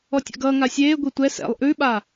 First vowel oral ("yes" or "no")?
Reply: yes